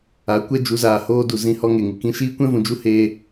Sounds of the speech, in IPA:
a˨˦ kʷ ɛ˦ d͡ʒ u˨˦ z aː˨ h oː˦ d u˨ z ĩ˦˨ h ɔ˦ ŋ e˨ ŋ ɨ˨ k ĩ˦ ʃ iː˦ kʷ ɛ̃˦ v ũ˨ d͡ʒ u˦ h eː˧

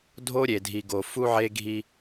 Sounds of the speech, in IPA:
dʱ o˦ ɾʲ e˨ dʱ i˨ ɡ o˨ f u˦ ʕ e˦ ɡʱ i˦

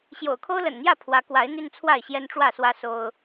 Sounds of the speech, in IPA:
ɕ j o̰˨˩ ʊ̯ kʰ o˦ ʊ̯ l ə̰˨˩ n n̪ j ä˥˨ pʰ w ä˨˦ k w a˨˦ ɪ̯ n̪ y˦ n t͡sʰ w a˥˨ ɪ̯ ɕ j ɛ˦ n ʈ͡ʂ w ä˥˨ s w ä˦ s o˦ ʊ̯

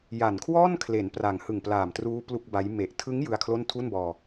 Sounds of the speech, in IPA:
j a˨˩ n kʰ w ɔː˥˩ n kʰ l e˩˦ n p r a˨˩ ŋ h ɯ˨˩ ŋ p l aː˨˩ m t r uː˦˥ p l u˥˩ k̚ b a˦˥ j m e˨˩ ʔ tʰ ɯ˦˥ ŋ j ɯ˧ a̯ kʰ l o˥˩ n tʰ u˥˩ n b ɔː˧

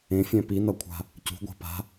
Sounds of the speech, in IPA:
ẽ fʲ ɛ̃ p i n ʌ kʷʰ a̤ | c ṳ ɡʷ a̤ p a̤

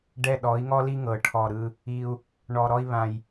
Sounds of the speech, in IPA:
ɖ ɛ˨˩ ɗ ɔ˩˧ i̯ ŋ ɔ˧ l i˧ ŋ ɤ˨˩ ʈʰ ɔ˨˩ ɾ ɯ˧ | i˨˩ u̯ | ɳ ɔ˨˩ ɾ ɔ˧ i̯ β ã˨˩ j

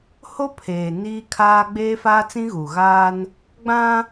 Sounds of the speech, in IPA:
h o˦ pʰ eː˨ n iː˦ kʰ aː˦ ɡ͡b eː˦ f aː˦ t͡s ĩ˦ ɣ uː˨ ɣ aː˦ n | ɡ͡b ã˦

